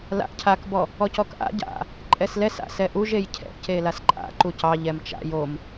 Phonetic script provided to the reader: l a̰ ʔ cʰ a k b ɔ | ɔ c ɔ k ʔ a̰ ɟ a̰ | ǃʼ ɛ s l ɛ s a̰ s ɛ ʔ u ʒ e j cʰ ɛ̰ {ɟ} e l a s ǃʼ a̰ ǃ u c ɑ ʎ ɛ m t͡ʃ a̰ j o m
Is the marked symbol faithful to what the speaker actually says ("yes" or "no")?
no